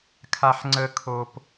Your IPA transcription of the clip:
kʰ a˦ ħ ŋ͡ǀ ə˦ kʰ o˦ p

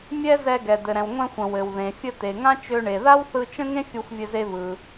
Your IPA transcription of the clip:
mʲ ɛ˥ z ɛ˧ ɡ ɛ˩ d̪ ɘ˩ ɾ ɛ̃˩ w ŋʷ ɛ̃˧ xʷ ə̃˩ w ɘ˩ w ð ẽ˩ fʲ ə˧ t̪ e˩ ŋ ã˥ t͡ʃ ø˧ ɳ e˩ ð a˥ w θ ɯ˧ t͡ʃ ə̃˥ ŋ ẽ˥ fʲ o˧ xʷ vʲ ɘ˧ z e˧ v ɯ˩

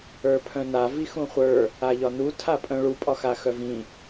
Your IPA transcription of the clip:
ə˞ pʰ œ̃ n a v i x ũ χʷ ə˞ | a ʎ ɒ n u tʰ a pʼ œ̃ ɭ u pʼ ɒ x a x œ v ĩ

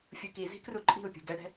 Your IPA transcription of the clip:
fʲ u k i z i̤ k r u ǃʼ i̤ u̯ pʲ ṳ ɡ ɛ ɽ ɛ̤

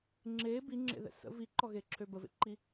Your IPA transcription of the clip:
ŋ͡ǁ eː b i ŋ͡ǁ ḛ ð ɛ̰ s ə̰ v i ǃ ɔ ɣ e ǁʰ ø b ə v ḛ ǃ i

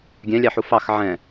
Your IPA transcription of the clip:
ɡʲ ɛ̃ lʲ ɑ ħ u f ɑ x ʕ ɛ̃

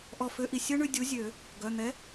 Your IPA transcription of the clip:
ʔ ɔ˧˩ f ø˦ ʔ i˧˩ sʲ ɵ˦ ɳ ʉ˦ dʲ u˨˥ zʲ ø˨˩˦ | ɡ œ˩˧˩ n̪ ɛ˨˥

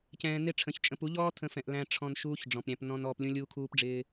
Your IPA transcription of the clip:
c ɛ̃ː˨ n ɪ˦˨ ʈ͡ʂʰ ə̃˨˦ ç t͡ʃʼ ə̃˨ p u˨˦ ʎ ɔː˦ tʰ ə̃˧ f ɛ̃˨ ʔ l æ̃˨ ʈ͡ʂʰ ɔ̃˨ n ʃ uː˦ ç ɖ͡ʐ ɔ̃˨ p ɾʲ æ̃˧ p n ɔ̃˧ n ɔː˧ p lʲ ũ˦ lʲ uː˦ kʰ uː˦ p ɖ͡ʐ ɪː˦

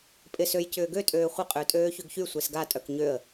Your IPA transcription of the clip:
pʼ ɪ s ø j c ʏː ɡ ø tʼ øː χʷ ɪ qʼ ʏː tʼ øː ç ø ɡ ç y sʷ e s ɡ a tʼ œ k ɲ ø ə̯

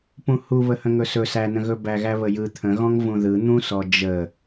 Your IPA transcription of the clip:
p ũ h u β ə h ə̃ ŋ ɵ s ɵ s æ n ə̃ ɣ ɵ b æ ɣ æ β ə j ɯ t̪ʰ ə̃ ɣ ɔ̃ ŋ v ũ ð ɯ n̪ ũ s ɔ d͡ʒ ə

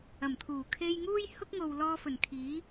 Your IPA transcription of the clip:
ɐ˨˩ m t̪ʰ uː˨˩ kʰ e˧ j ŋ uː˥ j h ʊ˥ k̚ ŋ o˨ w l ɔː˧ f ɵ˨˩ n kʰ iː˨˥

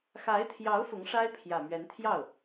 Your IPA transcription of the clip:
x a˧˥ ɪ̯ t̪ʰ j ɑ˧˥ ʊ̯ f ʊ˧˥ ŋ ʂ a˥ ɪ̯ pʰ j ä˨˩ m ɥ ɛ˧˥ n t̪ʰ j ɑ˥˩ ʊ̯

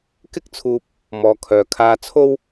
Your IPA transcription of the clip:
k ɪ˥ k̚ t͡sʰ uː˧ p̚ | m ɔː˨ kʰ œː˨ kʰ aː˧ t͡sʰ o˥ w

